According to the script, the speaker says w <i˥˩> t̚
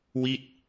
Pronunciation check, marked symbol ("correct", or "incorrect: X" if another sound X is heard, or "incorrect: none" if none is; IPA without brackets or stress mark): correct